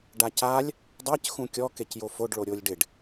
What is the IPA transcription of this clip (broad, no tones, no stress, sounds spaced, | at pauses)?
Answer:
ɖ a c a lʲ | dˤ ɛ c x ũ kʲ ɔ k e c j o f o ɖ ɭ o ɾʲ o lʲ ɖ ɪ ɖ